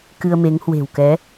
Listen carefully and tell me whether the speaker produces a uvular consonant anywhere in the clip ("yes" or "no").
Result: no